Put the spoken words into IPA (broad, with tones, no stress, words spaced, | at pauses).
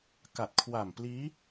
ka˨˩t̚kʰwa˨˩mpliː˦˥